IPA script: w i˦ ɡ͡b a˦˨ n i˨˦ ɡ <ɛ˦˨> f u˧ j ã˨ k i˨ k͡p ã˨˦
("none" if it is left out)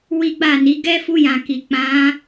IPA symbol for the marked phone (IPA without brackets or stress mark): ɛ˦